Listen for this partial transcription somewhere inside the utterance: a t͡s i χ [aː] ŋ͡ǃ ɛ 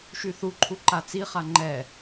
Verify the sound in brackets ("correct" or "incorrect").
incorrect